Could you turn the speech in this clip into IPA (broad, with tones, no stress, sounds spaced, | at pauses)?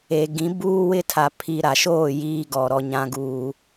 e˨ ɡ ĩ˨˦ b uː˦ w ɪ˦ tʰ a˨ pʰ i˨ ɾ a˨ ʃ oː˦˨ j iː˨ ɡ ɔ˨ ɾ ɔ˨ ɲ ã˨ ɡ uː˨